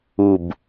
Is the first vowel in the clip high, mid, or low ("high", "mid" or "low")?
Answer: high